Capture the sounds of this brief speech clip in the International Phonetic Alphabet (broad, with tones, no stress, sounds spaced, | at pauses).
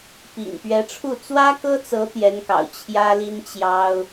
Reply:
p ḭ˨˩ ŋ p ɥ ɛ˧˥ ʈ͡ʂʰ u˥˩ t͡s w ä˥ k ɤ˥ t͡s ɤ˧˥ t̪ j ɛ˧˥ n k ɑ̰˨˩ ʊ̯ t͡ɕʰ j ä˥ l i˥ n t͡ɕ j ɑ˥ ʊ̯